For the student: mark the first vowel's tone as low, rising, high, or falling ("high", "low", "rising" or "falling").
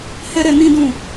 high